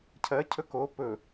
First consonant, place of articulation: palatal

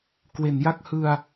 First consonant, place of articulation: velar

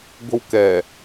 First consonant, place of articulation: velar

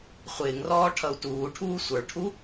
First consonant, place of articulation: uvular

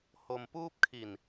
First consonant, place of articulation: glottal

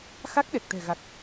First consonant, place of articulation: velar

